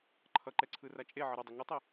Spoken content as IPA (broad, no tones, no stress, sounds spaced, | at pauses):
ǃʰ ʌ ǃ ɛ ǀʰ ɯ r a t͡ʃʼ e ʕ ʌ ɾ ʌ dˤ e ŋ ɯ tˤ i